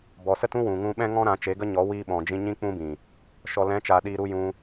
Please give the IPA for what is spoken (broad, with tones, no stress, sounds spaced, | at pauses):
b ɔ˨ s ə˦ t ũ˦ w ũ˨ ŋ ũ˧ ɓ ɛ̃˦ ŋ ɔ̃˦ ɾ ã˨˦ t͡ʃ e˨˦ ɡ ə˦ ɲ ɔ˨˦ w iː˧ ɓ ɔ̃˨ d͡ʒ ĩ˧ ɲ ĩ˦ k͡p ũ˦ b ĩ˨ | ʃ ɔ˨ l ɛ̃˨˦ t͡ʃ aː˨ ɗ iː˧ ɾ u˦ j ũ˧